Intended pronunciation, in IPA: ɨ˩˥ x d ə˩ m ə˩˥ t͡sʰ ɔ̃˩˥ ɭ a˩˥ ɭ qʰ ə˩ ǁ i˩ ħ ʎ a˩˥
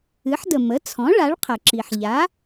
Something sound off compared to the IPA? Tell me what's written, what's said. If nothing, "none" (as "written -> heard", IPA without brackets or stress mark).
x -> ħ